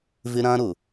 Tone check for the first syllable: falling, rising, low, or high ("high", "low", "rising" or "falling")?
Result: high